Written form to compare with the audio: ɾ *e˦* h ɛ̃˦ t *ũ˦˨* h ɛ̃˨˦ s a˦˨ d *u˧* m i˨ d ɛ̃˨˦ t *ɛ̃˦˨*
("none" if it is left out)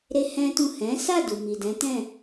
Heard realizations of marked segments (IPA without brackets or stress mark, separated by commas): e˦, ũ˦˨, u˨, ɛ̃˦˨